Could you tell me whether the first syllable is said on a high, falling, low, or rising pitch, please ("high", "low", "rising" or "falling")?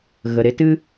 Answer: low